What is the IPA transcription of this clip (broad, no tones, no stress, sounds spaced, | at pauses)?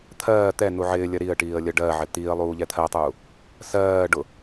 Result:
t̪ʰ ɜː t̪ ɛ n u ʕ ɪː lʲ ɜ ɾ i ə̯ ʈ iː ə̯ lʲ ɜ ɖ ɜ ʕ ɪ t̪ i ə̯ lˠ uː ʎ ɛ t̪ʰ ɜ tˤ uː | s ɜː ɖ ʊ